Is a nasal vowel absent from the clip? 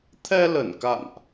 yes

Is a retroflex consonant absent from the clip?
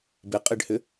no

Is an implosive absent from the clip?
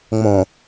yes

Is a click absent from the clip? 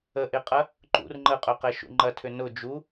no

